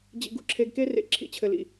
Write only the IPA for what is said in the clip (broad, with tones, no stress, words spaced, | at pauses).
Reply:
d͡ʑḭ˧ɡṵ˧ǁʰe˧ɡ ke˦rḛ˧ ǁʰḭ˧t͡ɕʰɘ˧lḭ˧